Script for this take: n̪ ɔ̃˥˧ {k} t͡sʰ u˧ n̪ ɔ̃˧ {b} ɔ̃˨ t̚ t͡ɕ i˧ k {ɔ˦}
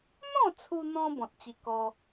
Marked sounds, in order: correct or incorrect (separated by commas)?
incorrect, correct, correct